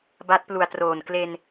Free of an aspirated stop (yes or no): yes